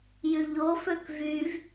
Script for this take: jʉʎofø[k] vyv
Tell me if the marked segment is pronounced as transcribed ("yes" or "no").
yes